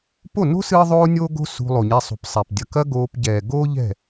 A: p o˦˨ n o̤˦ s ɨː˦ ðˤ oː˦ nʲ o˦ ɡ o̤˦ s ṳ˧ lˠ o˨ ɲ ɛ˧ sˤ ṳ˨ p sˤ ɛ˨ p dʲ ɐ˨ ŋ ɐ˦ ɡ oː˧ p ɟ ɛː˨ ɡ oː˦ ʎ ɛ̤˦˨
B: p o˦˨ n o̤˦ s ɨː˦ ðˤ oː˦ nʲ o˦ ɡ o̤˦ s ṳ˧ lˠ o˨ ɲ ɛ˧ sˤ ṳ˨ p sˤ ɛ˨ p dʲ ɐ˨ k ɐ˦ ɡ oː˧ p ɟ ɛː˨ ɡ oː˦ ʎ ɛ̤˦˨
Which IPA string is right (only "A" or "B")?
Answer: B